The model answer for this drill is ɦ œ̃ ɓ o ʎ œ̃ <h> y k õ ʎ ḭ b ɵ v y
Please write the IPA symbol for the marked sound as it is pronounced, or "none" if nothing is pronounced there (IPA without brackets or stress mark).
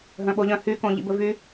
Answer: h